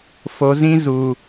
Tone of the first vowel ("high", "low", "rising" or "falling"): low